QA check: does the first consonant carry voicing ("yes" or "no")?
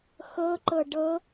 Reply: no